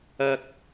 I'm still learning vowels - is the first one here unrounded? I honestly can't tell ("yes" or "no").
yes